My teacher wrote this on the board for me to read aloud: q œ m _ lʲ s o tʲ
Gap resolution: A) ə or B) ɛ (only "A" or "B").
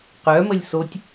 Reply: A